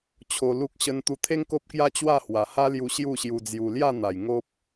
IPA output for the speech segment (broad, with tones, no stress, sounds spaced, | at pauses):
t͡ɕʰ o˧ l u˦ k̚ ɕ ə˧ n t̪ u˧ t̪ʰ e˦ ŋ k o˦ p̚ k j a˦ t͡ɕ w a˥˧ h w a˨˩ h a˦ l j u˧ ɕ j u˥˧ ɕ j u˧ d͡z j u˧ l j a˥˧ n̪ a˨˩ j ŋ o˦ p̚